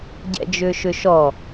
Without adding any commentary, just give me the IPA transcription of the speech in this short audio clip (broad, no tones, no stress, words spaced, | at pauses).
ɟɛ̰d͡ʒʏːʃʏʃɔ